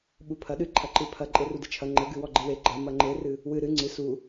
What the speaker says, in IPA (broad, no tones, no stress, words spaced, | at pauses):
ɓupʰɐ ɗɨ ǃʰɐǃɨpʰɐ ǃʼerudɨt͡ʃʰɐ ŋ͡ǃɘɡɨ wɔɡ͡ǃɨwe ɡ͡ǃɐ mɐŋ͡ǃerɨ | wɨ ɾɨ ŋ͡ǀɨ su